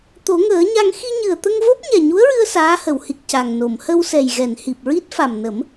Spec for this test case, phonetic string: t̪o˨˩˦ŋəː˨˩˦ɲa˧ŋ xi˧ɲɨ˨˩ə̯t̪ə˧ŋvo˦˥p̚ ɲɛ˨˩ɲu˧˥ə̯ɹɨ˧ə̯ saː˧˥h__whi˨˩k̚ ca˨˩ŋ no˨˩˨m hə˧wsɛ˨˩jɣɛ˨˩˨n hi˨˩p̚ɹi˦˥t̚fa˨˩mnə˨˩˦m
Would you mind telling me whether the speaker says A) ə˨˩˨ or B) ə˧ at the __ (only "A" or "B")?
A